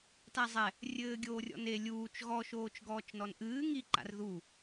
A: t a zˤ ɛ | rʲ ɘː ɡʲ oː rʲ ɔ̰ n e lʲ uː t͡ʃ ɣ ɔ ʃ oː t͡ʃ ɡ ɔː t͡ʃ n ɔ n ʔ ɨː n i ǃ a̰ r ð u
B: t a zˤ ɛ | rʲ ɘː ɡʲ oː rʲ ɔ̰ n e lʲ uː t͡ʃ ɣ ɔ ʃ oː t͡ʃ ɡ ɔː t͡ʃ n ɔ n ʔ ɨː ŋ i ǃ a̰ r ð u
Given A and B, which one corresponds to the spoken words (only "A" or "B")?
B